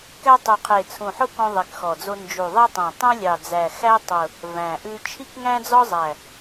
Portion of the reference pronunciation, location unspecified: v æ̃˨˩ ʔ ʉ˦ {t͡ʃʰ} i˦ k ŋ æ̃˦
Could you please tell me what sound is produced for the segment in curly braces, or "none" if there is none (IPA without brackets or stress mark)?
t͡ʃʰ